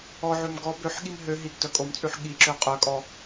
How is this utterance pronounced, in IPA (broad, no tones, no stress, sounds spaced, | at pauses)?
ɔ ʕ ø m ɡ ɔ b ø ħ ɠ i m ɦ ø ɦ i ɡ d œ kʼ o m t͡sʼ ʉ ħ ɠ i ǁ ø qʼ œ kʼ ɔ